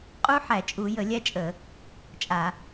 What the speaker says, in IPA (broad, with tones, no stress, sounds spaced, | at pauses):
qʼ u˦˥ ħ æ˧˩˧ t͡ʃʼ u˧˩˧ j ə˧˩˧ lʲ æ˦˥ t͡ʃʼ ə˧˩˧ | t͡ʃʼ a˧˩˧